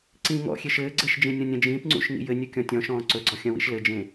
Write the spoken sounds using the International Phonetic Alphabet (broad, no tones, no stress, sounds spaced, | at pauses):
ǀ ĩː ŋ ɔ̰ xʲ e ʃ ɘː ɡ͡ǀ ɘ ʃ d͡ʒ ĩ nʲ ɔ̃ nʲ ɐ̃ d͡ʒ ĩː p ŋ͡ǀ ṵ ʃ ŋ ḭ j ɘ nʲ ɵ kʲ ɔ̃ tʲ ɔ̃ ʃ ɔ̃ː ǀ ɵ ɡ͡ǀ ɔ xʲ ɐ̃ w ḭ ʃ l ɘ d͡ʒ ẽ